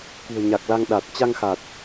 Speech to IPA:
kṳ˨˩ə̯ɲa˨˩k̚la˧ŋ ɗa˨˩t̚ t͡ɕa˧ŋxa˨˩t̚

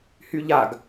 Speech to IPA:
hyʎaɡ

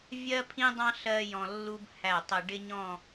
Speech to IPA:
vʲɜ˥pʰĩ˥dˤɑ̃˥ ɬɜ˥jɔ̃˧lːu˥b hæ˧˩ tˤə˧ɖɪ˥ɲɔ̃˥˧

